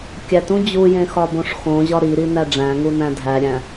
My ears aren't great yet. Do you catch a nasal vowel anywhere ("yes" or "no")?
yes